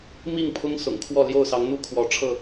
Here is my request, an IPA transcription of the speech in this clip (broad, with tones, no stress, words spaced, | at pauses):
mi˥˨ŋpʰʊ˦ŋ sʊ̰˨˩ŋkʰwɔ˥˨ ljo˥˨ʊ̯sɑ˨˦ŋn̪u˥˨ kʰwɔ˨˦ʈ͡ʂʰɤ˥˨